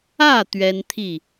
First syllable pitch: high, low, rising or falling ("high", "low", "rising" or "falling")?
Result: falling